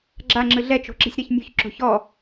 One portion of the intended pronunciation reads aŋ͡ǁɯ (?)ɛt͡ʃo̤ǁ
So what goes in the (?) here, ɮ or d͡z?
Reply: ɮ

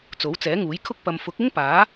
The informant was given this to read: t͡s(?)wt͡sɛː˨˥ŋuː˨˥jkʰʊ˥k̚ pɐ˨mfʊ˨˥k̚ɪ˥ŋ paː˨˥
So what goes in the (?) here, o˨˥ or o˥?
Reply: o˨˥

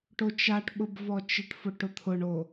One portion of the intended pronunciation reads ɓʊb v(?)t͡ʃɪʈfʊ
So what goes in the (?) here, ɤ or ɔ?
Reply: ɔ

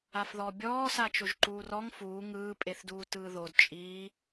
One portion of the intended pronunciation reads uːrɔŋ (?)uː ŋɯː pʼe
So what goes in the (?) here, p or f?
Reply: f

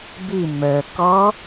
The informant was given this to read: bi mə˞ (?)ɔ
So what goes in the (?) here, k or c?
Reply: k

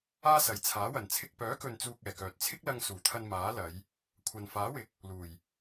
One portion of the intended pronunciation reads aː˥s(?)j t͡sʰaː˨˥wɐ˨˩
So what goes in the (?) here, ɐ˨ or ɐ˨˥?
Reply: ɐ˨˥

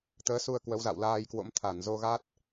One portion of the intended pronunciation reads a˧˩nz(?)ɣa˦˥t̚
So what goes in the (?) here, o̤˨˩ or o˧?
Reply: o˧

